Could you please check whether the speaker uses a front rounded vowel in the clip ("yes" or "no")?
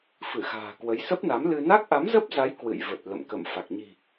no